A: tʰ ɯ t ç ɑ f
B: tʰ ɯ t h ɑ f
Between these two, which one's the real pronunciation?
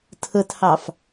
B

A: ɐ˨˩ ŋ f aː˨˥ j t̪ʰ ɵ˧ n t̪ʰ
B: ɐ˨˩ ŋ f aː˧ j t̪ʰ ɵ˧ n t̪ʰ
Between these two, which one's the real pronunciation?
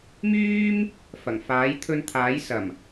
A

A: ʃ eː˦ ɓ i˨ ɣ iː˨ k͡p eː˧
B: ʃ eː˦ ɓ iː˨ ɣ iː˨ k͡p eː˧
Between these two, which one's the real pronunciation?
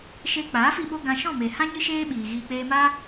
B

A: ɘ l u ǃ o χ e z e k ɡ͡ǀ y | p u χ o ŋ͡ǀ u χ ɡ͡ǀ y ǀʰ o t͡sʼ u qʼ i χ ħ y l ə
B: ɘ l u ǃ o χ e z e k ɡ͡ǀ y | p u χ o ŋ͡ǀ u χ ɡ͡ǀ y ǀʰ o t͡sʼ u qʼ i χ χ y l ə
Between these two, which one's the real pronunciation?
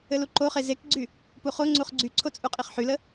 A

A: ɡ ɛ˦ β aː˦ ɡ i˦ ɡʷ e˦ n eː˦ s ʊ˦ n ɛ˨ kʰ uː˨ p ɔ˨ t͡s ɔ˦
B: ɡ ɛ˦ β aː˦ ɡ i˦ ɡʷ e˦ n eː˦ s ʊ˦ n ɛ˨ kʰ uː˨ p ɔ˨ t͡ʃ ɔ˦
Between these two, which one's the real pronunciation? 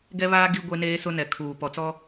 A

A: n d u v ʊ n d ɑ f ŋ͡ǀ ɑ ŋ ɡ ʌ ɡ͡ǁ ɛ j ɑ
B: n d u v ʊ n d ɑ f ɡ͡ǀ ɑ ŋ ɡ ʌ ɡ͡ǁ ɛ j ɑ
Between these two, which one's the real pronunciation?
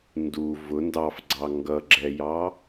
B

